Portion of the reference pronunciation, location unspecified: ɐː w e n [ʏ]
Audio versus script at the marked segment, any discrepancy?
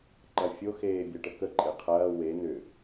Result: no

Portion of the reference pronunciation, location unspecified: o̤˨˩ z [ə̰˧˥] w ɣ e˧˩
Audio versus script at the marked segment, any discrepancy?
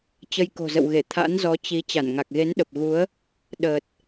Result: yes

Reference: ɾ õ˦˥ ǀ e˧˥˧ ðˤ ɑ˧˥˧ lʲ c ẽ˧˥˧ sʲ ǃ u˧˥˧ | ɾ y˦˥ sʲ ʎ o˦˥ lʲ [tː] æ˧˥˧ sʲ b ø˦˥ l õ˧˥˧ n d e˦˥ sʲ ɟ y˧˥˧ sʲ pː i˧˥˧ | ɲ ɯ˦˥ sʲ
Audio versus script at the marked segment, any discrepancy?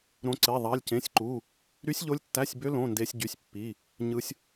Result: no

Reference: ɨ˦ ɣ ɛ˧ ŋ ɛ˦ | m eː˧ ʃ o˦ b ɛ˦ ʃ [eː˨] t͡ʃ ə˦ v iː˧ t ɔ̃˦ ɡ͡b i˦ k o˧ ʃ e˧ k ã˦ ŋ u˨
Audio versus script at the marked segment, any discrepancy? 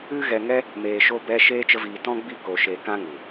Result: yes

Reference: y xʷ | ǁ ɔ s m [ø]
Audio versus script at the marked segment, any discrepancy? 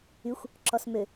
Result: no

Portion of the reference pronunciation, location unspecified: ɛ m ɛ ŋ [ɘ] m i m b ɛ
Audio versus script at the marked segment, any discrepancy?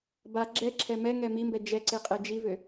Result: yes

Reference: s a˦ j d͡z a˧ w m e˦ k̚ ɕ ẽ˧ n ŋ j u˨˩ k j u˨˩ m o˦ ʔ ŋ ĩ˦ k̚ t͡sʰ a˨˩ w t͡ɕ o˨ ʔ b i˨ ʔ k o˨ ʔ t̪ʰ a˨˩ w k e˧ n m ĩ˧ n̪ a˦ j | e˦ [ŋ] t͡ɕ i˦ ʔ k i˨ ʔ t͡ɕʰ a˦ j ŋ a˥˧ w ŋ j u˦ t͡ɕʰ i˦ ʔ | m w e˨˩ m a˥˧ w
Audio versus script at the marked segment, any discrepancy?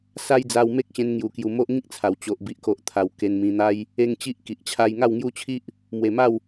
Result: no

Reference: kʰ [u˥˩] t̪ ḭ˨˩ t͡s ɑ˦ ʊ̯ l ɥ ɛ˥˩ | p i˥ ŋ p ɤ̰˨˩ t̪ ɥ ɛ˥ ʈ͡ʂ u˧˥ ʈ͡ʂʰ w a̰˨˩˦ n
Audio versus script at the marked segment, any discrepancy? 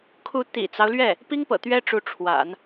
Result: yes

